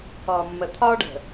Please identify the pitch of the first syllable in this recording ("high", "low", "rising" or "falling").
low